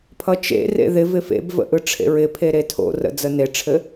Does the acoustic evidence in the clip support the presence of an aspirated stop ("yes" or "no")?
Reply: yes